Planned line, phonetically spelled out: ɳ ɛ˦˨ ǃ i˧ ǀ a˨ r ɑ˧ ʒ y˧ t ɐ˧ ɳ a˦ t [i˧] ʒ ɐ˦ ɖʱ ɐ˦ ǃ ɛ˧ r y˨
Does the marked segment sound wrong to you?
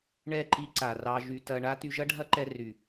yes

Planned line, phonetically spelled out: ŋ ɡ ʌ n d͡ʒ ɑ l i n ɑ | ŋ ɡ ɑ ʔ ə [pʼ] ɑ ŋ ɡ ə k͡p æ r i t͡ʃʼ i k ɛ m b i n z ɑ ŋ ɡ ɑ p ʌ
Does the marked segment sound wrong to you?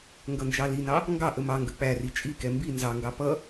yes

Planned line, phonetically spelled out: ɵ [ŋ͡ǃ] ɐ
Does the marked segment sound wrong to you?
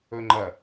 no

